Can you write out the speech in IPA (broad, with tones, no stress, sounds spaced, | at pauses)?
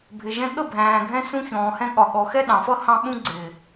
bʱ ɪ˨ ʒ ɛ̃˧ ɠ ə˦˨ bʱ æ̃ː˨ ɡʱ ɛ̃˧ s ũ˧ ç ɔ̃ː˨ h ɛ̃˧ ɠ ɒ˨ ɠ ɔ˨ x ɛ˦ ɗ ɑ̃˨ f ʌ˦ h ɑ̃˧ ɓ ũ˧ ɡ͡ǀ ɪː˨